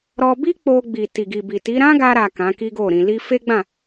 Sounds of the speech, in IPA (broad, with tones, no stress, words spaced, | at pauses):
ɾɔ˧ bi˦k͡po˧ɡ͡bi˨ ti˨ɡi˨bi˨ti˨˦ ɾã˦ɡa˧ɾa˨ kã˨˦ki˦ɡo˦˨ɾĩ˧ li˧ fe˦ɡ͡bã˦˨